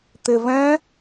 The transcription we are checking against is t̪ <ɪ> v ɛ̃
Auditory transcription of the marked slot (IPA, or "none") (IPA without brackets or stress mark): ɪ